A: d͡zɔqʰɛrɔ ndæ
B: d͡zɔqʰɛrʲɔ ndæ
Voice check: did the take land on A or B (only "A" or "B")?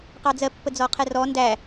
A